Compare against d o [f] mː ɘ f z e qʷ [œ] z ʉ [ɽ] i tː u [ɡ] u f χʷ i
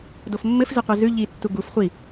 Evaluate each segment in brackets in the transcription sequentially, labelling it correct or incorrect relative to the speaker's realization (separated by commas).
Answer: correct, correct, incorrect, correct